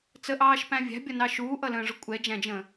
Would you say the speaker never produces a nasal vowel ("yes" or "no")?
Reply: no